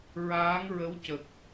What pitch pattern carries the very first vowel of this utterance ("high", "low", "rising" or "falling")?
rising